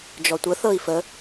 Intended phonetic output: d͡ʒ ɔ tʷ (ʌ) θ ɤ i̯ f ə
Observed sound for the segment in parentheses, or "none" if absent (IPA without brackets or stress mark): ə